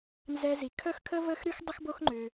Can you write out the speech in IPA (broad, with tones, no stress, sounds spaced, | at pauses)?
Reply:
n z ɛ˧ z i˩ kʰ œ˥ x kʰ ə˥ v əː˥ x ɾ y˥ x dˤ ə˥ x b o˥ x ŋ͡ǃ ʏ˩